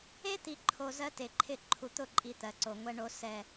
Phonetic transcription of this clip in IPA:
e˦ t̪ i˨ ǃʰ o˨ z ɜ˦ t e˨ ǃʰ ɪ˦˨ ǃʰ u˨ t̪ ʊ˦˨ ǃʼ i˨ t̪ ɜ˨ ǀ o˨ ŋʷ ɛ˨ ɳ o˨ s ɛ˨

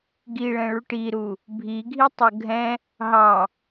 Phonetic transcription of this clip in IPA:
ɡ i ɭ ɛ̃ ɭ u ʈ i ɾ u | bʱ i ɡʱ i tˤ ɤ ɡʱ ɛ̃ | ɦ ɑ

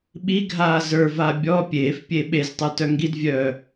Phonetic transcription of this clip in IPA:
ɓ i ɡʱ aː z ə˞ v a bʲ ɔ pʲ eː f pʲ e ɓ e z tˤ ə˞ t œ ŋ ɡ i d vʲ œː

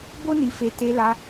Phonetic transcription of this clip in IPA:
b o˦ n i˧ f e˧ t e˧ l a˧

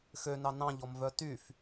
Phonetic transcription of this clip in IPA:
x ø n ɑ n ɑ̃ ʎ ɔ m v œ t y f

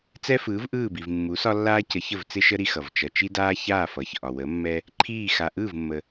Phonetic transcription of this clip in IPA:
t͡s ɛ˦ f ɯː˨˦ v ʔ ɯː˦˨ b i˨ v mː u˨˦ s ɒ˦ lː aː˦ c ə˨˦ ç ə˦˨ v t͡s ɪ˦ ʃ ə˦ ɾ i˦ x ʌ˨ v t͡ʃ ʌ˨ t͡ʃ i˦ d aː˦ ç aː˦˨ f ʌ˨ ç ʔ ɒ˨ w ə˨˦ mː ɛ˦ | ǃʰ iː˦˨ x a˨ ʔ ɯː˦˨ v mː ə˨

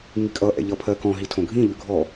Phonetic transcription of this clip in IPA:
ŋ i kʼ ʌ ʔ ɛ̰ ʎ ʌ pʰ ɜ k ɔ̃ ɦ i tʰ õ ɡʱ ĩ ʎ ʉ ɡʱ ɔ

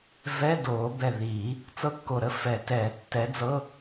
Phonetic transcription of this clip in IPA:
v ɛ˧˥˧ d oː˨˩˦ b ɛ˧˩ ð iː˨˩˦ | t͡s ɤ˥˧ kː o˧˩ ɾ ə˥˧ f ɛ˨˩˦ t ɛː˨˩˦ tː ɛ˨˥ d͡z ɤ˧˥˧

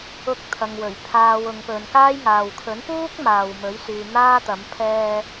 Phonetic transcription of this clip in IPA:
ʊ˧ k̚ t̪ʰ ɐ˨ ŋ w ɵ˨˩ ɥ pʰ aː˨ w ʊ˨˧ ŋ p ɵ˨˧ n k aː˥ j ŋ aː˨ w kʰ ɵ˨˥ n p uː˥ k̚ m aː˨ w m ɵ˨˥ ɥ s yː˨ n̪ aː˥ t̪ ɐ˨˥ m pʰ ɛː˧

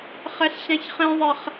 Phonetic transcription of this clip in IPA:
χ ɛ ɬ ɕ ã ç χ ẽ ðˤ ɛ χ

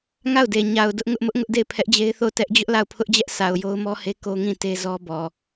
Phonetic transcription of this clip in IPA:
ŋ a˦˨ ʊ̯ d e˨ ɲ a˨ ʊ̯ d ʊ˦ ʔ ŋ ʊ˦ ʔ m ʊ˦ ʔ ŋ ʊ˦ ʔ d e˦˨ ɪ̯ pʰ ɛ˦ ʔ d͡ʑ e˦ ɪ̯ θ o˦˨ ʊ̯ t ɛ˦ ʔ d͡ʑ ʊ˦ ʔ l a˦˨ ʊ̯ pʰ ʊ˦ ʔ d͡ʑ ɛ˦ ʔ s a˨ ʊ̯ j o˦ ʊ̯ m ɔ˦ h e˦ k o˦ ŋ ĩ˦˨ t e˦ z ɔ˦ b ɔ˨

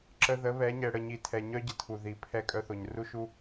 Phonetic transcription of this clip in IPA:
ǁ ə˨ ð ə˨˦ β ɛ˨˦ ɲ ɛ˨ ɽ ə˨ ɲ i˨ tʰ ɛ˨ ɲ œ˦ ɟ ə˨ tʰ u˨ ð i˨˦ pʰ ɛ˦˨ kʼ œ˦ θ o˨ ɲ r u˦ ʃ u˦

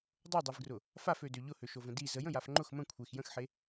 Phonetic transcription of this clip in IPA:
dˤ o dˤ i v ɡ r ʊ | f a f ø d ø ʎ ʊ h ø ʃ o v ə̃ d i z ə j ə̃ j a f ŋ͡ǃ ʊ x m ə̃ kʷʰ e x j ə̃ x ħ e

